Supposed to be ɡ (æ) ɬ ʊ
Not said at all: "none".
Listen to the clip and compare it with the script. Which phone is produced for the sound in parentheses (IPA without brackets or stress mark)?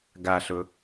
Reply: a